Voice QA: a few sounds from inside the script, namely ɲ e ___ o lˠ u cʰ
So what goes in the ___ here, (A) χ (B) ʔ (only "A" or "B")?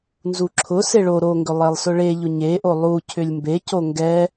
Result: B